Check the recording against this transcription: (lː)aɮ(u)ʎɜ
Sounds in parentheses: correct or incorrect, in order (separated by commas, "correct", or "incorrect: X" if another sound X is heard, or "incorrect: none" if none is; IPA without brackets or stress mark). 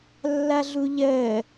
correct, correct